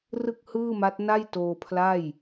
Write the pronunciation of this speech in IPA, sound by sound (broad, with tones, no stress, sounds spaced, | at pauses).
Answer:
r ɯ˥˩ k̚ h ɯː˥˩ m a˦˥ t̚ n a˥˩ j t oː˧ pʰ l a˥˩ j